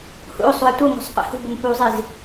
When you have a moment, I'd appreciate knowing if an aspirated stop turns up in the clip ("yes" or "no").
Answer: no